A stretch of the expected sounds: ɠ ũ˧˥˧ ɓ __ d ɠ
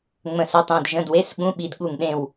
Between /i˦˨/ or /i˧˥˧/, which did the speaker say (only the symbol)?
i˦˨